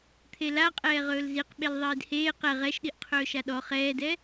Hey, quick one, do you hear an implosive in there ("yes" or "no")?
yes